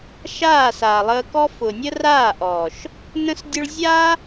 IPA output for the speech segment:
ʃ aː˦˨ s aː˨ lˠ əː˧ k ɔ˦ f ʊ˨ nʲ ə˦ r aː˦˨ ʔ ɔː˨ ʃ | n ə̃˦ s dʲ ʊ˦ ɭ zʲ a˦

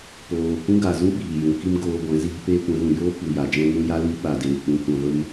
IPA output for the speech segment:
p oː˨ k ũ˦ ɡ a˨ z ũ˦ ɓ iː˨ j ũ˨ k i˦ m ɡ oː˧ ɡʷ ɛ̃˨˦ z iː˧ p eː˦ kʷ ɛ̃˨˦ ɣ ũ˨ j oː˦ p u˨ j a˨ d͡ʒ ɛ̃˦ ŋ ũ˦ j a˦ l i˦ ɓ a˨ d eː˨ k͡p ũ˨ kʷ ã˨ v ə˧ m

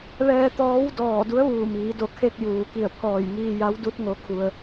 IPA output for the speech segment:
ʋ ɛː˧ t̪ ɔː˧˥ w d ɔː˧˩ d u˧˥ ə̯ ʋ uː˧˩ m iː˩˧ d o˧˩ kʰ e˧ k̚ j uː˩ k i˧˩ ə̯ pʰ ɔː˧˩ j ŋ iː˧ j a˧˥ w d u˧˥ t̚ ŋ o˧˥ kʰ u˧ ə̯

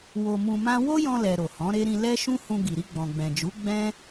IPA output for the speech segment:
w o˧ m ũ˧ m ã˦ w o˦ j ɔ̃˧ l ɛ˨ ɾ o˨ h ɔ̃˨˦ ɾ e˦ ɾ ĩ˧ l ɛ˦ ʃ ũ˦ h ũ˧ ɡ i˨ ɾ i˧ ɡ͡b ɔ̃˨ ɡ͡b ɛ̃˨ d͡ʒ u˨˦ ɡ͡b ɛ̃˦

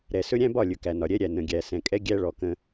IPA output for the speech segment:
ɾ ɛ˨ s ɵ˦ ɾʲ æ̃˦ b ɒ˦˨ lʲ ɵ˨ k æ˨ n ɒ˨ ɾʲ ɛ˦ ɾʲ æ˨ n ə̃˨ ɡʲ æ˨ s ɛ̃˨ kʼ ɛ˦ ɡʲ æ˦ ɭ ɔ˨ k ə̃˦

